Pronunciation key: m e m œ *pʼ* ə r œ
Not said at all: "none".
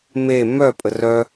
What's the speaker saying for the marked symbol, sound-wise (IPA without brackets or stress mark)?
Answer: pʼ